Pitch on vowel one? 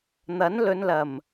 rising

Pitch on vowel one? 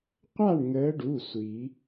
falling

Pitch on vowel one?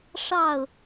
falling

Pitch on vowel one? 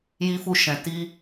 high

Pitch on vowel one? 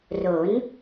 rising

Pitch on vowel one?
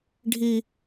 high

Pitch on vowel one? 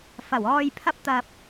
low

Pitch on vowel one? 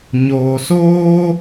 low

